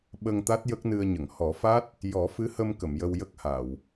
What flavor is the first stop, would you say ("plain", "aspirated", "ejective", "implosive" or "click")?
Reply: implosive